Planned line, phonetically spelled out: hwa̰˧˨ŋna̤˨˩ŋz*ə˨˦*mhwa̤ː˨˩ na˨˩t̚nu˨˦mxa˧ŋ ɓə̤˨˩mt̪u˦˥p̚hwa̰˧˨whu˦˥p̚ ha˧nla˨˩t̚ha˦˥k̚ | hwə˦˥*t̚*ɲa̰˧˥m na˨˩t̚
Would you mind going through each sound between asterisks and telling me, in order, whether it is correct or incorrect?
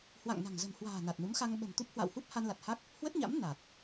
incorrect: ə̤˨˩, correct

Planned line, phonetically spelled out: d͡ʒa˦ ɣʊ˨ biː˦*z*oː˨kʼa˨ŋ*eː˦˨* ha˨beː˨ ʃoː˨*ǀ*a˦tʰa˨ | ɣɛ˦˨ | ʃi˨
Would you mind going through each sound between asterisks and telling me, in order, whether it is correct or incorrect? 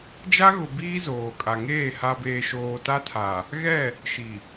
correct, correct, incorrect: t

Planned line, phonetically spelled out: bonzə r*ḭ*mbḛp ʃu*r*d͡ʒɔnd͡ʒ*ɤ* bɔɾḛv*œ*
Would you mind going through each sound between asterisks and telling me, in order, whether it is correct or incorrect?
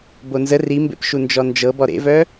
incorrect: i, incorrect: n, correct, correct

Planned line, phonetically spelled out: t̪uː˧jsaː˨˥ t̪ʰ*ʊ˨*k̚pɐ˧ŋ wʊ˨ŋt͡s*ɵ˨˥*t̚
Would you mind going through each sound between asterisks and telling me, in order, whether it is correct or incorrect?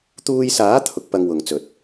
incorrect: ʊ˨˥, correct

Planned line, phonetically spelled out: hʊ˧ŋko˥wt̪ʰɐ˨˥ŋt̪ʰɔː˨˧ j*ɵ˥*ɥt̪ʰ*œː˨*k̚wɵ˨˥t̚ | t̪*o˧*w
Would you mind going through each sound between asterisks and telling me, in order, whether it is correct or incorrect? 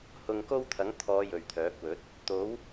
incorrect: ɵ˨, incorrect: œː˨˥, incorrect: o˨˥

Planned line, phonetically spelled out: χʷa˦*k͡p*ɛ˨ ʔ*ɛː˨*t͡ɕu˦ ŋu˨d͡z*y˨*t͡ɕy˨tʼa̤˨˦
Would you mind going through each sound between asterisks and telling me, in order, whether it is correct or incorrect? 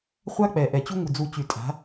correct, incorrect: ɛ˨, incorrect: u˨

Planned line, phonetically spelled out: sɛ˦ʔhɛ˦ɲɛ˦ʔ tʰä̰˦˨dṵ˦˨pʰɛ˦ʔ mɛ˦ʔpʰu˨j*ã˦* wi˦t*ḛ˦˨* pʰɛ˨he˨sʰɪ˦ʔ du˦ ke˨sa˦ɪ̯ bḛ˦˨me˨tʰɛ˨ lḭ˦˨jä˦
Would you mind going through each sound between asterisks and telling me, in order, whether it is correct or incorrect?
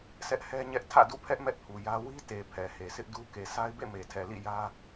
incorrect: ä˦, incorrect: e˨

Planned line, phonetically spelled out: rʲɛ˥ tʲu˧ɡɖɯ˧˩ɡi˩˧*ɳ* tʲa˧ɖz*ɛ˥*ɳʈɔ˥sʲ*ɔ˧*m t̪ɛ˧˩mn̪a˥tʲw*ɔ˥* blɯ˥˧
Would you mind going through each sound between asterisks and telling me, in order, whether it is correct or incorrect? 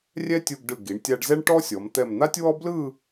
correct, correct, incorrect: ɔ˩˧, correct

